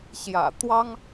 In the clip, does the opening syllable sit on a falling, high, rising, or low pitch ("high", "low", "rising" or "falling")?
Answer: low